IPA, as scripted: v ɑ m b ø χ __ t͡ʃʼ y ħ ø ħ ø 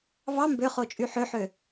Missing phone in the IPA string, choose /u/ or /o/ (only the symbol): o